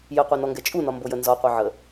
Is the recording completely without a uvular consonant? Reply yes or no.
no